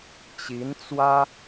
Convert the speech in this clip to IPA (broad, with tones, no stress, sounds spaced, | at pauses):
t͡ɕ i˧˥ n t͡s w ä˥